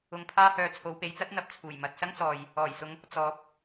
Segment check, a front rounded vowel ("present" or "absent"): present